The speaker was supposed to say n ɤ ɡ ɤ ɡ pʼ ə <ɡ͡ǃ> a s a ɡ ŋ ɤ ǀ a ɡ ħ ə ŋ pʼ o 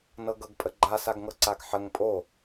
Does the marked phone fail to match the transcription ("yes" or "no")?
no